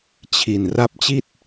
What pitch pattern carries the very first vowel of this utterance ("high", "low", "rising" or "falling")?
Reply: low